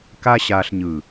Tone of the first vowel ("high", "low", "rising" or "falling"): high